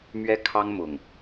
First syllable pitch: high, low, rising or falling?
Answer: high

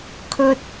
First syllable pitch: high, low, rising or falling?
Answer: high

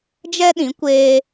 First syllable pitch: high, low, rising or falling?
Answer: high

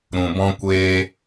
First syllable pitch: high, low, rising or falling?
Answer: low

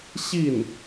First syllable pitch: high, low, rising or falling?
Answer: falling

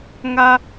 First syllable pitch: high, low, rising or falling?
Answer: high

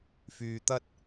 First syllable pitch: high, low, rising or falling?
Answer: low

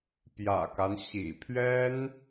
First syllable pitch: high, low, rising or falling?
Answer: low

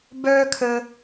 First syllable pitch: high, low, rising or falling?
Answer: high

